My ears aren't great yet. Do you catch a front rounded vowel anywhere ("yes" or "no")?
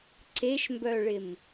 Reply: yes